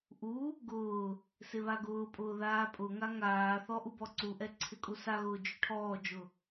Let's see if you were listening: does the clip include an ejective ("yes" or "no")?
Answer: yes